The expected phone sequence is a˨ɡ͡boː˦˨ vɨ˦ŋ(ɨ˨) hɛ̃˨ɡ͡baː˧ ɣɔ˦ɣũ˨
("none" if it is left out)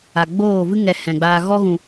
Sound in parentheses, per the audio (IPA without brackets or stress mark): ɛ˨